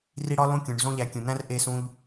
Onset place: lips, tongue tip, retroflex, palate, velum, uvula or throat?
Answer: tongue tip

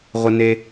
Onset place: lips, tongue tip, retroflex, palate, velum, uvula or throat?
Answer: uvula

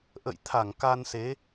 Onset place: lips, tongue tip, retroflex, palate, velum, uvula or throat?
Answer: throat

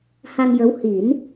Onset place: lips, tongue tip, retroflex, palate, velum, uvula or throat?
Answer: throat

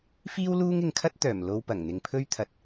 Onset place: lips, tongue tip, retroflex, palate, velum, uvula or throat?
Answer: lips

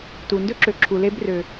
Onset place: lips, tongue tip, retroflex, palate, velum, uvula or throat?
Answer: tongue tip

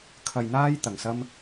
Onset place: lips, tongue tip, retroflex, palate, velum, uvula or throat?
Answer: velum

